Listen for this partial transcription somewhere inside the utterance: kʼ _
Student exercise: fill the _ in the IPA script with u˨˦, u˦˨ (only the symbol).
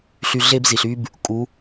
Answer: u˨˦